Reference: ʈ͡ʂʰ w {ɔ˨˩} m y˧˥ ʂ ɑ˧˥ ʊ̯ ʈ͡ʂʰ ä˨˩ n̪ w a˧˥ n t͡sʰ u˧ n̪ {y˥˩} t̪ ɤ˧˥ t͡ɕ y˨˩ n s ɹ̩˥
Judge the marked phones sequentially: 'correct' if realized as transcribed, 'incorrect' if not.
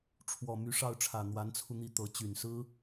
correct, incorrect: i˥˩

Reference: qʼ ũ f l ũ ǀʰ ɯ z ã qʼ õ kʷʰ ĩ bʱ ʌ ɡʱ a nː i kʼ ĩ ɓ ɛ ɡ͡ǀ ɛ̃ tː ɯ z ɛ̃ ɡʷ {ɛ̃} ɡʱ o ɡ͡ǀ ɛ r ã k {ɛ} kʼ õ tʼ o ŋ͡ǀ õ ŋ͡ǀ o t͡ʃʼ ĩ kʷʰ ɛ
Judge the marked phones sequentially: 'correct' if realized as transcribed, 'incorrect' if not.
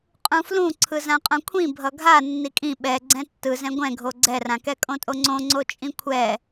correct, correct

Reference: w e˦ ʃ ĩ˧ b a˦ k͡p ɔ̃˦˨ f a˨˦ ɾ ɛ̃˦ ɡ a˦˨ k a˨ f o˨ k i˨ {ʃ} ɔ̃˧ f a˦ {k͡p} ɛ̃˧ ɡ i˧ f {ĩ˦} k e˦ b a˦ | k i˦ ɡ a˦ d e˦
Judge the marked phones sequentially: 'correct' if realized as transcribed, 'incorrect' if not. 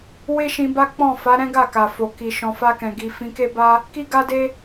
correct, incorrect: k, incorrect: ĩ˧

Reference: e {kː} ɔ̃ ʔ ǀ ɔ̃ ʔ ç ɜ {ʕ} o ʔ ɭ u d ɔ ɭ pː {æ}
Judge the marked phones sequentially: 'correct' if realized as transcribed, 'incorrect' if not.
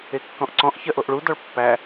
correct, incorrect: ʔ, correct

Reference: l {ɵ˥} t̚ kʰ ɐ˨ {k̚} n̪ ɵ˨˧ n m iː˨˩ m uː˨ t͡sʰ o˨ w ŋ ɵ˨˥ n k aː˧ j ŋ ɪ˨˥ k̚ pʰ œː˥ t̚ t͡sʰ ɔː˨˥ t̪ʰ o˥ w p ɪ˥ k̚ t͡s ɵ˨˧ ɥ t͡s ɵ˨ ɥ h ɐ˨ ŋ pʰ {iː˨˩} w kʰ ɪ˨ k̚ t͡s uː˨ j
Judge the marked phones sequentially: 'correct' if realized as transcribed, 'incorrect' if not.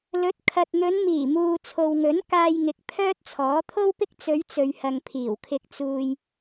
incorrect: ɵ˨˥, incorrect: t̚, correct

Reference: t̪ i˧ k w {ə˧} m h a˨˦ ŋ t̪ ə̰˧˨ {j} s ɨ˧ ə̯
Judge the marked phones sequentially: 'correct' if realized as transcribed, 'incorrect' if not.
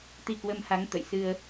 correct, correct

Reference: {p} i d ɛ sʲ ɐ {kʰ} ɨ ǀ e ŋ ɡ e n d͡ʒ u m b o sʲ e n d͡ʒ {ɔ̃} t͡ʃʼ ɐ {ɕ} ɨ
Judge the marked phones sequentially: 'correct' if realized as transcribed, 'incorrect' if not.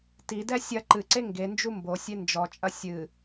incorrect: t, incorrect: ǃ, incorrect: ɔ, incorrect: sʲ

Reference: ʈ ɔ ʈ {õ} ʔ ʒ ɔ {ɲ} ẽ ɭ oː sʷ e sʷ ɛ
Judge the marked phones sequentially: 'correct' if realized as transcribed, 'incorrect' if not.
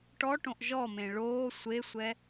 correct, incorrect: m

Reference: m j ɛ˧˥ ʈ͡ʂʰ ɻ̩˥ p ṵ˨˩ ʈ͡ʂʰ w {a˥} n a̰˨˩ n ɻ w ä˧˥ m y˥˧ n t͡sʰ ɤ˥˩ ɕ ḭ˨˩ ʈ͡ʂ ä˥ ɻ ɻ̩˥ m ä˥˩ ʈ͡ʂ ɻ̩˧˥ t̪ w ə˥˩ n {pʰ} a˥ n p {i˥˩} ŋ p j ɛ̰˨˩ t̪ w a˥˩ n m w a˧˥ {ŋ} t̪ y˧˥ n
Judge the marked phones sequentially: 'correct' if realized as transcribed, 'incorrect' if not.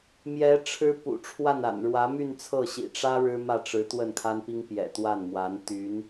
incorrect: a˥˩, incorrect: kʰ, incorrect: i˥, incorrect: n

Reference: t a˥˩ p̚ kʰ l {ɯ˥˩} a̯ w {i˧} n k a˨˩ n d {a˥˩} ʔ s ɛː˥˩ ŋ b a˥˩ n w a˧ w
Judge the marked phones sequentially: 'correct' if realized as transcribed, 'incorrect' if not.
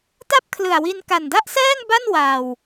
incorrect: ɯ˨˩, correct, correct

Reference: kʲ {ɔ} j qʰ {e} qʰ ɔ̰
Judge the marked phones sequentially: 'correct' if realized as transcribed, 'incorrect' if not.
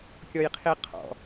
correct, correct

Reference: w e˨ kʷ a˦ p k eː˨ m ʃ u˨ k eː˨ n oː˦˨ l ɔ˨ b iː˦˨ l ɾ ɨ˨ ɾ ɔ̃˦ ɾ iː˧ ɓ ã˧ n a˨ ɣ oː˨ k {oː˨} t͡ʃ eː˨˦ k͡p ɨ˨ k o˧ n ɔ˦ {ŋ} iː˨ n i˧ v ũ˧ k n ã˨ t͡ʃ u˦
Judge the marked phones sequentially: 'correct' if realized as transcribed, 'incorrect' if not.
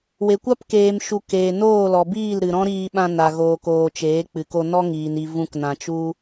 correct, correct

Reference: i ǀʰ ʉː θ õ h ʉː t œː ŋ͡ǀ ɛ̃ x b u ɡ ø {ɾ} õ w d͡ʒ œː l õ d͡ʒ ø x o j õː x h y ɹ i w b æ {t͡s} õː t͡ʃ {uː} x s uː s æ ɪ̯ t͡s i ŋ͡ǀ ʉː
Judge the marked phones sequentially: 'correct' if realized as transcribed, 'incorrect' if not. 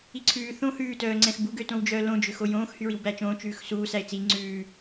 incorrect: t, incorrect: t͡ʃ, incorrect: ʉː

